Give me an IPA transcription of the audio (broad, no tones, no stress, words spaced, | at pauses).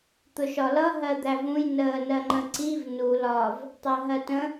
t̪ʊʃɒlʌ ɦɜd̪ævũj nəːnɜŋ͡ǃə̃ǀiv nu lɒv | tˤɜɦɜtə̃